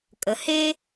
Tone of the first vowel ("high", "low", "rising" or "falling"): low